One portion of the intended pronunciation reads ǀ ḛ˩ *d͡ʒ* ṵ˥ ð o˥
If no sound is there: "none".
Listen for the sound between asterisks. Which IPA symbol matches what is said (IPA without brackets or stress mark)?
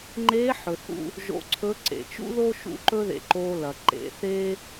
t͡ʃ